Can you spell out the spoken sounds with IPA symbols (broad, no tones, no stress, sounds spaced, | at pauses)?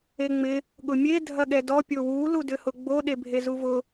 e ŋ͡m ɪ | ɠ ʊ mʲ e dʱ ɐ ɠ ɛ d ɔ pʲ o w u l u d ʏ h ʊ ɡ͡b o ɗ e bʱ e z u v ʊ